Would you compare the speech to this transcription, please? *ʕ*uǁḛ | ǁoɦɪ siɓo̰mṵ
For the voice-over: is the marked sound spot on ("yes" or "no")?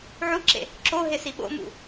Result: yes